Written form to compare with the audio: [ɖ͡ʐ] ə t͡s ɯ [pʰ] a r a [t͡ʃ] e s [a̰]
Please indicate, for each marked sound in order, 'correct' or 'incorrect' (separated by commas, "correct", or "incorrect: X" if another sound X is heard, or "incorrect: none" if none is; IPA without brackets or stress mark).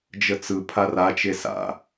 incorrect: d͡ʒ, correct, correct, correct